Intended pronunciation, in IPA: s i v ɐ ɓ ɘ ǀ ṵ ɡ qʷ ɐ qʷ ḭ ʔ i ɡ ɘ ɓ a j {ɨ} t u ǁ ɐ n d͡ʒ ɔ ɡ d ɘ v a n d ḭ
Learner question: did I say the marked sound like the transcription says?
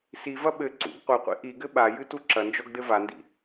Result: yes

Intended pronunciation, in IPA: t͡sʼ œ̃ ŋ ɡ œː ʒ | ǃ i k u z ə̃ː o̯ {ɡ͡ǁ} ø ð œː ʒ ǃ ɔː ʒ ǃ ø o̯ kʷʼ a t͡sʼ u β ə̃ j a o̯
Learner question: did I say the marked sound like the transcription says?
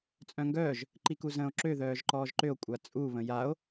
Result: no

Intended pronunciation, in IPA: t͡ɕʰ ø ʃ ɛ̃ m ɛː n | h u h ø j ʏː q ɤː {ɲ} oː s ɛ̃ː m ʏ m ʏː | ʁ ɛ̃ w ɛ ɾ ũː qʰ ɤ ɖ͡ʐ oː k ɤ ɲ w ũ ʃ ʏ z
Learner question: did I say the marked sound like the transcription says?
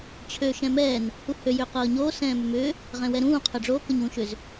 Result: yes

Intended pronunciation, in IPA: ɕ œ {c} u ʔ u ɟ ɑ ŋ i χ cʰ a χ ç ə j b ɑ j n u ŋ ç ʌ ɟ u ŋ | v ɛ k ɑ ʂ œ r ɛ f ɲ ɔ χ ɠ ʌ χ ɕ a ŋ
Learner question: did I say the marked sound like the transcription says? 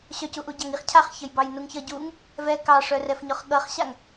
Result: yes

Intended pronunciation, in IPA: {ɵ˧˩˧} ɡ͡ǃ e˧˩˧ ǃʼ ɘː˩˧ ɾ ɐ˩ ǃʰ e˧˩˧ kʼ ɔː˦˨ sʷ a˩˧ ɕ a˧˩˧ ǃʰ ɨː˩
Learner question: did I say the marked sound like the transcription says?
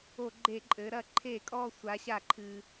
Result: no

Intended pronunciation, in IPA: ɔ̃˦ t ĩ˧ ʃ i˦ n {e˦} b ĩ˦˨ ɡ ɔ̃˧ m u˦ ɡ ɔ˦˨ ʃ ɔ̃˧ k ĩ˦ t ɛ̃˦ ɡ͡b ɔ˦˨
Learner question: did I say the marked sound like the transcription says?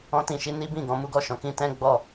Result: no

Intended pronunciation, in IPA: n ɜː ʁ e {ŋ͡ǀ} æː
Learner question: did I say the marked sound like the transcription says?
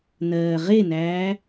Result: no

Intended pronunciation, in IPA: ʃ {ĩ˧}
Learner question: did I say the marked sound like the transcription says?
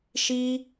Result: no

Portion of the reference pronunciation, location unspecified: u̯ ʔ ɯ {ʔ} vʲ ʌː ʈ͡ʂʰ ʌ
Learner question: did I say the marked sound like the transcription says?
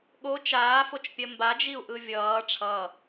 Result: no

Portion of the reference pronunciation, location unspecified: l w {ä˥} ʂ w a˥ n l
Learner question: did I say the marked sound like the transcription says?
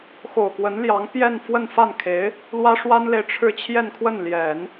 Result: yes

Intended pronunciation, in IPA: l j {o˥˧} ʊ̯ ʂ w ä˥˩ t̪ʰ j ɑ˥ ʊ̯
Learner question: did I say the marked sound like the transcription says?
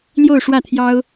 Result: yes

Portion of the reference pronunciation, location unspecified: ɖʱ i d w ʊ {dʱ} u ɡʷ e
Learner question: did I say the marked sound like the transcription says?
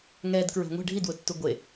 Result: no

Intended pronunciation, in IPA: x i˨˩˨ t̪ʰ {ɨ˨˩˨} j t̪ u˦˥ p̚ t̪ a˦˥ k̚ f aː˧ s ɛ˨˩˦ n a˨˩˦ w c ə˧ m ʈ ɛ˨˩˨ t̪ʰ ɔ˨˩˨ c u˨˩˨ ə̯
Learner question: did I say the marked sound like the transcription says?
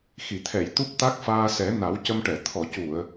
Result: no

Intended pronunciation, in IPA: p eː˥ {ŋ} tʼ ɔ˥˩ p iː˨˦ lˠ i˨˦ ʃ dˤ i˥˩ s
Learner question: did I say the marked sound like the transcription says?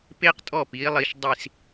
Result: no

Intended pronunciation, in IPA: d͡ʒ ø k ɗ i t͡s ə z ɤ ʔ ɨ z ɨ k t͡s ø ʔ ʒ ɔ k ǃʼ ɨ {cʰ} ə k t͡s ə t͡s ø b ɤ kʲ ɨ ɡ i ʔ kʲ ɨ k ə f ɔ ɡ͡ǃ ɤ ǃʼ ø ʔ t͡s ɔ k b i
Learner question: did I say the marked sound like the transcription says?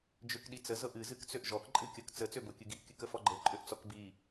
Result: no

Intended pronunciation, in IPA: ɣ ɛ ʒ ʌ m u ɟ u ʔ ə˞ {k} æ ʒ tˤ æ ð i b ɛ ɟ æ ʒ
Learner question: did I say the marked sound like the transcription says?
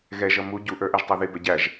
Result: no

